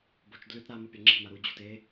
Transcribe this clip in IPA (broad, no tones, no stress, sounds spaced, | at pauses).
b o t͡ʃ d l ʉ t ɾ a m o pʲ ɐ ŋ͡ǁ i̤ m a ɾ u d͡ʑ ṳ t e